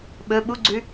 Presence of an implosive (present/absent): present